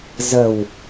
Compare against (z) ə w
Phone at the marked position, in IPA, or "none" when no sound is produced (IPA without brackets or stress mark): z